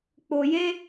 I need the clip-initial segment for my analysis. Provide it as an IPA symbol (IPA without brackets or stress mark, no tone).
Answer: k͡p